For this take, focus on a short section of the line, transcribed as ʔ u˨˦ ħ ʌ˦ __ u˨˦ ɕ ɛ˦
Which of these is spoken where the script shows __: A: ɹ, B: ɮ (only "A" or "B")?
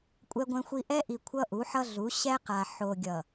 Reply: B